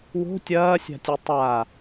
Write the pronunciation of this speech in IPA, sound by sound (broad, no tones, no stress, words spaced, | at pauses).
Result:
wo̤ tʲɐːsʲa̤tʲʉ tˤa